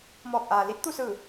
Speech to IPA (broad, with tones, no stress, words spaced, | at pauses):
mɔː˧˩k̚ʔaː˩li˧˥t̚t̪u˥˨ sɯː˧˩